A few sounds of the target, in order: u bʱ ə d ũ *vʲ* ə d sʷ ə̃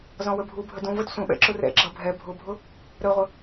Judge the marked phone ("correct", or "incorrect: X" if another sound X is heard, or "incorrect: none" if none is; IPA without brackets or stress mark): incorrect: v